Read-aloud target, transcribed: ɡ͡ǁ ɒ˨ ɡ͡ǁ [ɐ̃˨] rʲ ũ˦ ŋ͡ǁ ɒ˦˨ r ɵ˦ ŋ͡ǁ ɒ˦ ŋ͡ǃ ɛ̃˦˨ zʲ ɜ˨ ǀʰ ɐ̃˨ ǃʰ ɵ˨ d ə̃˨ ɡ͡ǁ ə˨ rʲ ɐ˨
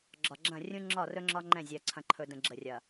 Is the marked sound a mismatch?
yes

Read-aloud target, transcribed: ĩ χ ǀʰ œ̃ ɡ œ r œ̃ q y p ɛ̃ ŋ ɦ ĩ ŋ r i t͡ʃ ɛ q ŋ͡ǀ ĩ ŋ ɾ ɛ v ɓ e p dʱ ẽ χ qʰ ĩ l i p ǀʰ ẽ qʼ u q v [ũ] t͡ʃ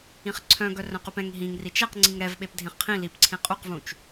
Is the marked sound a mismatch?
no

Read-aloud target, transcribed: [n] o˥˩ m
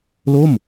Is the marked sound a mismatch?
yes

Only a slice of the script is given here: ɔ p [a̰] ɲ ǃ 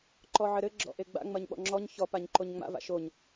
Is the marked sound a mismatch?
yes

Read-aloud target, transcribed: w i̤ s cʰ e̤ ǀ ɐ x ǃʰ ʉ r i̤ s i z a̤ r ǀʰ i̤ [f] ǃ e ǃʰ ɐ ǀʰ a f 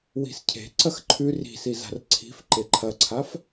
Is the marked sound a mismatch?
no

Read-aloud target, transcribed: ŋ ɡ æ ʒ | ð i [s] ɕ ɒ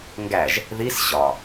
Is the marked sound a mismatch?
no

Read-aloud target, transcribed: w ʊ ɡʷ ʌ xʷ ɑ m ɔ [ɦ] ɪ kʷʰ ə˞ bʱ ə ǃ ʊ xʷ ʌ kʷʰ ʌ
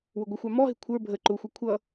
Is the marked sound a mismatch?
no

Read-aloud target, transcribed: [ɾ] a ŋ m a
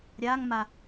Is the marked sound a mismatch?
yes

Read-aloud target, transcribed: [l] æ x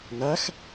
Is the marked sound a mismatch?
yes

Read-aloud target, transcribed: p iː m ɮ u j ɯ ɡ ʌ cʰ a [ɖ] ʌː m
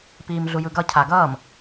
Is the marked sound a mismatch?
yes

